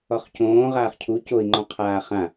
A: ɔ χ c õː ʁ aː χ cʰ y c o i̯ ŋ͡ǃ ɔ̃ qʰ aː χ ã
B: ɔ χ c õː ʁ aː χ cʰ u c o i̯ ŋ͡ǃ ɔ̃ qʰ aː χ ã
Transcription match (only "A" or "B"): B